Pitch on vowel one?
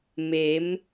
rising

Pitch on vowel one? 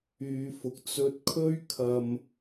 low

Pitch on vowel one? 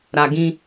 low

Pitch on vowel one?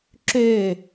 falling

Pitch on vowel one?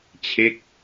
falling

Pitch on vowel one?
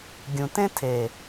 low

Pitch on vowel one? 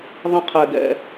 high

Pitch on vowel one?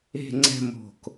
falling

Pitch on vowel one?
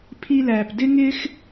high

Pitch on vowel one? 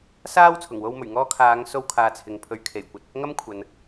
high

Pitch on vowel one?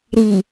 low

